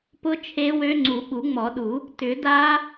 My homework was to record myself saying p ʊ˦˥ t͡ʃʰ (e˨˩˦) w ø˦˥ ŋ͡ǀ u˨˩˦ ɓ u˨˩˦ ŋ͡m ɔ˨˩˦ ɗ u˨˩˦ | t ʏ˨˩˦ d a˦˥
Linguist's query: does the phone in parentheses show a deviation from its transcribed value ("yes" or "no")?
yes